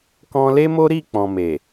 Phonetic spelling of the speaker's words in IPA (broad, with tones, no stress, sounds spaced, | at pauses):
k ɔ̃˧ l e˦ m o˦ ɾ i˦˨ k͡p ɔ̃˨ m e˨